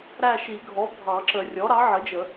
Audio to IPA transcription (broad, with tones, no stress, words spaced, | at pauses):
ɾæ˦˨ʃi˨˩˦ɡʱɔ˩˥ bʱɑ˨˩˦ǁə˨˩˦ rʲɔ˩˥ɾɑ˩˥ʕə˩˥d͡ʒə˨˩˦